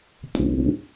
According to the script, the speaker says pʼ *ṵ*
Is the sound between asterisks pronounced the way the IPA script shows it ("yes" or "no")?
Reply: yes